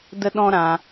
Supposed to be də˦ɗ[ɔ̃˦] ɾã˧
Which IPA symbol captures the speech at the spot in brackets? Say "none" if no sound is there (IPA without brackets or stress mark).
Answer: ɔ̃˦